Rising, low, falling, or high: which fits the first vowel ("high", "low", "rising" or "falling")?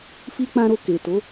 high